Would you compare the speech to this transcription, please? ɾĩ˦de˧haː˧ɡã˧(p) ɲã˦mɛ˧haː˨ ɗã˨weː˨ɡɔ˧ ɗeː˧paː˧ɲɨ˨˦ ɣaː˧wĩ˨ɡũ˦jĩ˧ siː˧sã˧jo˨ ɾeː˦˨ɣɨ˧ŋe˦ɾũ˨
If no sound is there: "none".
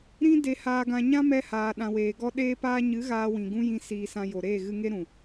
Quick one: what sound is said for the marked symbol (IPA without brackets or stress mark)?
none